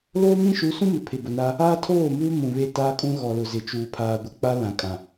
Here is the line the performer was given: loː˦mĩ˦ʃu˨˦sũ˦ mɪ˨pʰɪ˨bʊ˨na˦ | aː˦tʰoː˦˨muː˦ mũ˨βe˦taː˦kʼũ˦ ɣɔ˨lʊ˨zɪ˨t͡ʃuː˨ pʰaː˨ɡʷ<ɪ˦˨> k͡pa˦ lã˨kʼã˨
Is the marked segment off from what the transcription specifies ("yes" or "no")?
yes